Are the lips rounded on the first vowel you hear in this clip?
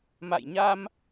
no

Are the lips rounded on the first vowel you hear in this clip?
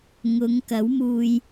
yes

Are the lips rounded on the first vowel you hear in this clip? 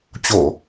yes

